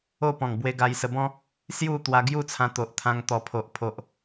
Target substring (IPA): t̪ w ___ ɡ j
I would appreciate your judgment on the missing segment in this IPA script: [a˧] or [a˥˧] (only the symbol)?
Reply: a˧